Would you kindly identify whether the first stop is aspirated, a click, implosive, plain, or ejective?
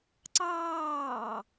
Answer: click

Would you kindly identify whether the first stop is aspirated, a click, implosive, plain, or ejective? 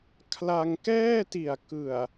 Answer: aspirated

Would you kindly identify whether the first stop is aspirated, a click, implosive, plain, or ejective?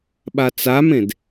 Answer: implosive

